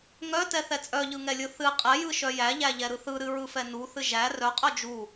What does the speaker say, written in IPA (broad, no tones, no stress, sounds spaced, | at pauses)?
ŋ œ t ɛ θ ɛ t͡sʼ œ ʎ ɯ ŋ ɛ lʲ ɯ θ ɨ qʼ ɛ j ɯ ʃ œ j æ ʎ æ ʎ ɛ ɾ ɯ θ ɯ ɾ ɨ ɹ ɯ f ɛ n u θ ɨ ʒ æ r œ qʼ œ d͡ʒ u